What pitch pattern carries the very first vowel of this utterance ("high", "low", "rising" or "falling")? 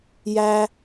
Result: high